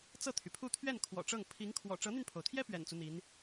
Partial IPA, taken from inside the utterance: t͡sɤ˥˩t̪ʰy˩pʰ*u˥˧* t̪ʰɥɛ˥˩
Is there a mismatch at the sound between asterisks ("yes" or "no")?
no